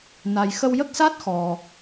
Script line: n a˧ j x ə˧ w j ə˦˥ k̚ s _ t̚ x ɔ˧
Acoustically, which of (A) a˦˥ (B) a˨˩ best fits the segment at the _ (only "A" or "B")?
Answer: A